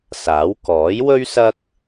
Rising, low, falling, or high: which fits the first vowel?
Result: rising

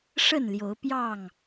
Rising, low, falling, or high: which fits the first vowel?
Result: falling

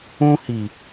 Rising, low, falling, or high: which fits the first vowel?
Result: high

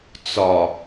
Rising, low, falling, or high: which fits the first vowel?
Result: low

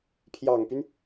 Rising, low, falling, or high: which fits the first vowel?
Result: low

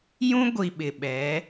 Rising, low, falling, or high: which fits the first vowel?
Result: high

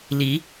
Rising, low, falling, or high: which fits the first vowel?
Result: rising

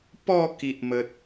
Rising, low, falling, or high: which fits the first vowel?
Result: falling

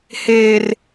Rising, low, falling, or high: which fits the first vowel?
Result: high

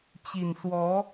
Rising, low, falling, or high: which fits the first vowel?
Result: low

